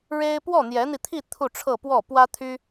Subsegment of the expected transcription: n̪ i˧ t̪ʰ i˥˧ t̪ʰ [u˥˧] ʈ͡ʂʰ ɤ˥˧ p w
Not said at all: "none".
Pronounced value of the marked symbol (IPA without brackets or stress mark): u˥˧